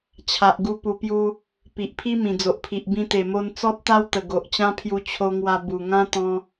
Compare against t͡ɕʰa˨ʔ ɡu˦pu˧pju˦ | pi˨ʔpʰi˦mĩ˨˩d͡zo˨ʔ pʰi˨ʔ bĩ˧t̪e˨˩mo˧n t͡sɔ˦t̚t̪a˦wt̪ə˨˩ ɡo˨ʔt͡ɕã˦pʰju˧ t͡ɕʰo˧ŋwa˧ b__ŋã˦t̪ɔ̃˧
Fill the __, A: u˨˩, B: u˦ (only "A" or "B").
A